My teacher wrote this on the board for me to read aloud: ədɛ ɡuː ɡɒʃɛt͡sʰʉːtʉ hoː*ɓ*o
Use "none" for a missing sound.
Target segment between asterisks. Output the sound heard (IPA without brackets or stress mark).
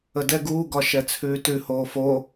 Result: f